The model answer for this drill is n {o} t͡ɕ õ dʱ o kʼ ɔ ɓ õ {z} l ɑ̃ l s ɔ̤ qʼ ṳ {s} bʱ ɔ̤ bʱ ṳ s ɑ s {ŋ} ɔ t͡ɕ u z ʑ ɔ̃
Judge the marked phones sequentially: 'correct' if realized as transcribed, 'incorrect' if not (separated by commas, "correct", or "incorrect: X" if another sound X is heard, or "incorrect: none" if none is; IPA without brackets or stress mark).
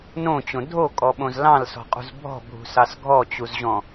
incorrect: õ, correct, incorrect: z, incorrect: ɡʱ